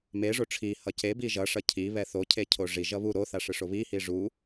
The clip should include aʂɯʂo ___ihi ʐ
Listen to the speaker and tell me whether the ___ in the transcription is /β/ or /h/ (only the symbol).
β